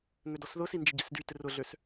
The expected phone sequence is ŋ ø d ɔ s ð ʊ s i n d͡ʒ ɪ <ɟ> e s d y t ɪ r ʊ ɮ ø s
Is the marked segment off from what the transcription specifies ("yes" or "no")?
no